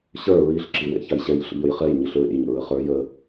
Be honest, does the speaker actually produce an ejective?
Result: no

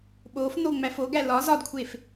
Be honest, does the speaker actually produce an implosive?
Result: yes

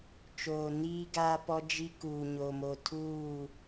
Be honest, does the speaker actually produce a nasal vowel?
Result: no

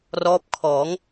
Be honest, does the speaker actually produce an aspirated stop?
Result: yes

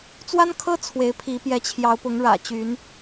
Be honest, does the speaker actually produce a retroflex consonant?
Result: yes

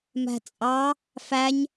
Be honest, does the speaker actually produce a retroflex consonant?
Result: no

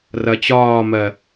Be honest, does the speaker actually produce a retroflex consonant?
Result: no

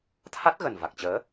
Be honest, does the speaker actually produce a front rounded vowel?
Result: no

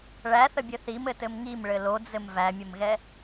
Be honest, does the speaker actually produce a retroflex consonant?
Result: yes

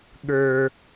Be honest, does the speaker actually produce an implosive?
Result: yes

